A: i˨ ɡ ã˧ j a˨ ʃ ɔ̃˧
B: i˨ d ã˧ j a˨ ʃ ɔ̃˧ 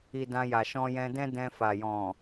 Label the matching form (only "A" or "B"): B